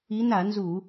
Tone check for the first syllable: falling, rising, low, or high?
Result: rising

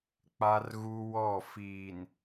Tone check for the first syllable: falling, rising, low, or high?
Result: high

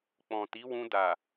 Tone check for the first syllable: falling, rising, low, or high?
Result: low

